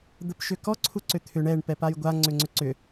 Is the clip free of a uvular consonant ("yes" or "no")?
yes